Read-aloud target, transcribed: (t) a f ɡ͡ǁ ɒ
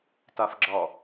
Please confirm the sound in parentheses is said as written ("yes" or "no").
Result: yes